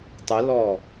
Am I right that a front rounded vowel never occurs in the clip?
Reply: yes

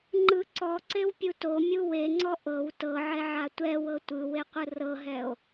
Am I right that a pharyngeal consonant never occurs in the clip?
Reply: no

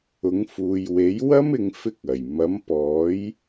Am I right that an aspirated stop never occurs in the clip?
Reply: yes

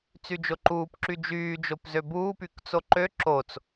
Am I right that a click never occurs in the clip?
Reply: no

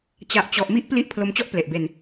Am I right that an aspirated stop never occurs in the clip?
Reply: no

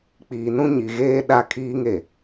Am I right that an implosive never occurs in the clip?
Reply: no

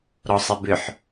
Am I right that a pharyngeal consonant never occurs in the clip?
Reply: no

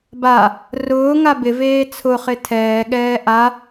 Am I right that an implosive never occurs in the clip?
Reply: no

